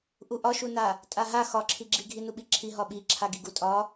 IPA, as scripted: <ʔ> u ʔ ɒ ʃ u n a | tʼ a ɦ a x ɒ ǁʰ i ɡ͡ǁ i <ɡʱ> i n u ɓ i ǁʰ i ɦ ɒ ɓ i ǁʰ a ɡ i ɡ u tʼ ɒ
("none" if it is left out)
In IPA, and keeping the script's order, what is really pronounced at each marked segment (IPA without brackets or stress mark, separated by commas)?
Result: ʔ, ɡʱ